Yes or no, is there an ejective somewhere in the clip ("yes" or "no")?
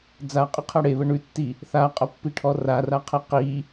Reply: yes